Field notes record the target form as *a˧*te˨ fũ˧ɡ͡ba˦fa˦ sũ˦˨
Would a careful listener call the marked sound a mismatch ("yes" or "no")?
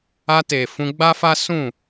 no